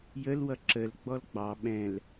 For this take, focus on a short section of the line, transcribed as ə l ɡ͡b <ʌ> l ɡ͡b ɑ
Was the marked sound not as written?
yes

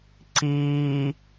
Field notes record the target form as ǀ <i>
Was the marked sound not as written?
yes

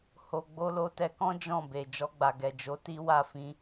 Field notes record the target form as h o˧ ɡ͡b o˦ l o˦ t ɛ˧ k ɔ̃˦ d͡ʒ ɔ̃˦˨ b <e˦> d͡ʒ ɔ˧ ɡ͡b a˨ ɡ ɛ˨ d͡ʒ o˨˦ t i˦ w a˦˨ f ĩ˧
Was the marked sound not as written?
yes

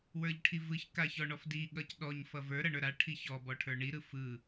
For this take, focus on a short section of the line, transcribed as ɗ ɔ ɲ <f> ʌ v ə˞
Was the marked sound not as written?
no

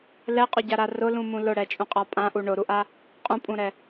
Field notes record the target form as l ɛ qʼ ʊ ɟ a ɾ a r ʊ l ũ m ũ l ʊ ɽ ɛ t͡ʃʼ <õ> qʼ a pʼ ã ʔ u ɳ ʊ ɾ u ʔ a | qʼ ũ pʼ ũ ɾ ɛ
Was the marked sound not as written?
yes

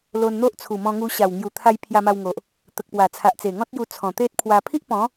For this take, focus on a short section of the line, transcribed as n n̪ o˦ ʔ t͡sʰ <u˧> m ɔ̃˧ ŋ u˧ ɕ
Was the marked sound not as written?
yes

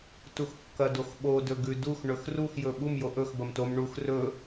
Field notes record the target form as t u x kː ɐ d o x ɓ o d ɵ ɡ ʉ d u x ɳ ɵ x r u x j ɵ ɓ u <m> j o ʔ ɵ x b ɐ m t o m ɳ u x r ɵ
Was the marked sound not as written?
no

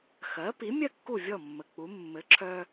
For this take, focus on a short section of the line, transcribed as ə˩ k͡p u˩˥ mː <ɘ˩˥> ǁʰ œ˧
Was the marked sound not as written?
no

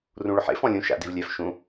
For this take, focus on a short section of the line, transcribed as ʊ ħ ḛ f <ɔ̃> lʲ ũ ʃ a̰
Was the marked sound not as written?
no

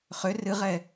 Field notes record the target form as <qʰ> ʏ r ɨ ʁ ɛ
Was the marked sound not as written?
yes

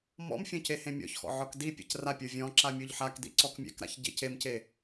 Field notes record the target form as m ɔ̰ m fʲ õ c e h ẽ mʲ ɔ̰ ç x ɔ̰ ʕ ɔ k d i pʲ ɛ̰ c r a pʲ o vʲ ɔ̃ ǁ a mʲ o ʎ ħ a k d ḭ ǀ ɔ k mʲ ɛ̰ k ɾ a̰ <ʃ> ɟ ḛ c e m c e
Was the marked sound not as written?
yes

